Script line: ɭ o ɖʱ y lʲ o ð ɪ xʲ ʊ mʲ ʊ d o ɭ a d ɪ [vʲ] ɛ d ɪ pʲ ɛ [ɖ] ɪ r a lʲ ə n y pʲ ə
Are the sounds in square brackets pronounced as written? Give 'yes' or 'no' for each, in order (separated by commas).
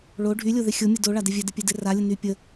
yes, no